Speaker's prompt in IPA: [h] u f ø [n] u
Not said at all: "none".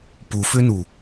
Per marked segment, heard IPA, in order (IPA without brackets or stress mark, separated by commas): p, n